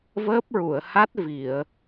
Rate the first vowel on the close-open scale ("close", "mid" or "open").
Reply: mid